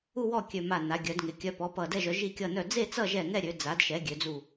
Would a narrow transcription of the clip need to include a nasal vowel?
no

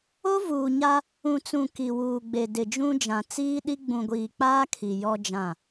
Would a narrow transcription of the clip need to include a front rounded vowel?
no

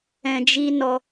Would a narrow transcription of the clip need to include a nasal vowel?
yes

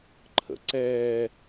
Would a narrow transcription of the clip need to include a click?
yes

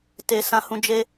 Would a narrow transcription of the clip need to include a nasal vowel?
yes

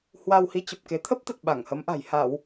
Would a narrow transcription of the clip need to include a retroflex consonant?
no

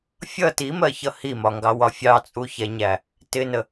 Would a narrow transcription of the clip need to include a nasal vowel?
no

